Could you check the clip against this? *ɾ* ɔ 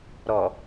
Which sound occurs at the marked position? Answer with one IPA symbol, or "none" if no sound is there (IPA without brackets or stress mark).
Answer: ɾ